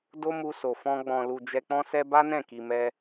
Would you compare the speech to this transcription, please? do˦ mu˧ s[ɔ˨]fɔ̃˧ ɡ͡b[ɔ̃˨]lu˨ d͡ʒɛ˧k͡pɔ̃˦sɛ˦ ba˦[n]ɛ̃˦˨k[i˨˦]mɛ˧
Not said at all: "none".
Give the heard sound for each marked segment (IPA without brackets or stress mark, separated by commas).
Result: o˨, ɔ̃˨, n, i˨